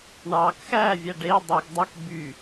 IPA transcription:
ɳ ɑ k x æ vʲ æ ɖ e dˤ u ɡ dˤ æ k b y

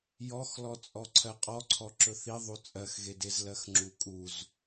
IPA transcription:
j ɔ x l ɔ t͡sʼ ɔ ǀʰ ɜ qʼ ɔ ǀʰ ɔ ǁ ɵ θ i ðˤ u t͡sʼ ɜ x ɣ e d e z l ɜ x ŋ͡ǁ u kʼ u z

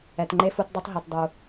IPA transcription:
ɛ˨ t ŋ͡ǃ e˦ f u˧ t dˤ o˦ tˤ ɦ o˨ t dˤ u˨

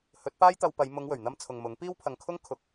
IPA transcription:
h ɵ˨˥ t̚ p aː˥ j t̪ ɐ˧ w p ɐ˨˧ j m ʊ˨˧ ŋ w ɵ˨˩ ɥ n̪ ɐ˧ m t͡sʰ ʊ˨ ŋ m ʊ˨˥ ŋ p iː˥ w pʰ ɐ˨ ŋ kʰ ʊ˥ ŋ kʰ ʊ˨ k̚

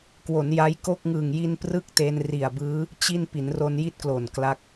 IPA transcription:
k w o˩˦ n j a˦˥ j k o˥˩ k̚ ŋ ɯː˨˩ ŋ j i˧ n p r ɯ˥˩ k̚ t e˧ n r i˨˩ a̯ b ɯː˦˥ | t͡ɕ i˥˩ n p i˩˦ n r o˧ n j i˥˩ t̚ k l o˨˩ n k l a˦˥ k̚

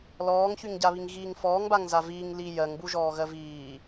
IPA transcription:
l ɔː ŋ ç y ŋ ɟ a β i ŋ ɣ iː ŋ f ɔː ŋ b a ŋ z a v iː ŋ l i j ɜ ŋ b u ʒ ɔː ɣ ɜ v iː

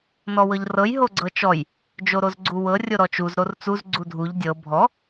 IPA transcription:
n ɔ w ɤ ʎ r ɤ j ɦ o ɡ͡ǀ ɤ t͡ʃ ɔ j | d͡ʒ o ɾ o z ɡ͡ǀ u w ɤ rʲ o ɾ ɔ t͡ʃ u z ɾ o r t͡s u z ɡ͡ǀ u dʱ u ʎ dʲ ɤ bʱ ɔ

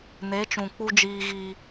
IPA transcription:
n e˨˦ t͡ʃ ũ˨ k͡p u˦ d͡ʒ iː˦ ɣ iː˦

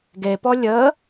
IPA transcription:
ɡ e p ɔ lʲ ə

